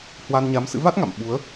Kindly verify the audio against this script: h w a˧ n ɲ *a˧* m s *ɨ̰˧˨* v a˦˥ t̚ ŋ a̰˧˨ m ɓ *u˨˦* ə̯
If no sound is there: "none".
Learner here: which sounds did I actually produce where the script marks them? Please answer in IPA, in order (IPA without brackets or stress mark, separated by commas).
a˨˦, ɨ̰˧˥, u˨˦